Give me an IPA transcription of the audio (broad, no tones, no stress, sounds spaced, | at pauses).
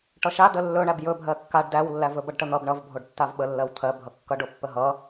ʈ ʌ ʃ a d ə lː ɵ ɳ æ b j ɵ bʱ ɜ kː a ɖ d æ w lː æ v ɵ b ʌ ɖ ʈ ə n̪ ʌ b ɳ ʌ v bʱ o ɖ tː a v ɓ ə lː ɜ w t̪ʰ ɜ bʱ ʌ kː ʌ ɖ o pː ə ɦ ʌ